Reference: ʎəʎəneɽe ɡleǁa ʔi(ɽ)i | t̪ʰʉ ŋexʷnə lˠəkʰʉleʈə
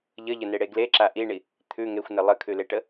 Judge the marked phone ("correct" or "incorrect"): incorrect